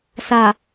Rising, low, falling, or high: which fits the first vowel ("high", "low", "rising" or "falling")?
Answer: low